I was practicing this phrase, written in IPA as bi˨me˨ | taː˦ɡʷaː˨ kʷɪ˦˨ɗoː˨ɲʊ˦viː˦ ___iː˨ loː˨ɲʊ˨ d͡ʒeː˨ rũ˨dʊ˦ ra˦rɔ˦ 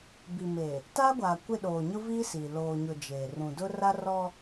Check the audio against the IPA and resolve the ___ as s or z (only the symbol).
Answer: s